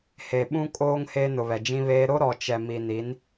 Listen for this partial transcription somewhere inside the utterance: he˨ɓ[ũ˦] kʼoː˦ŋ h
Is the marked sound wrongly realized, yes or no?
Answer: no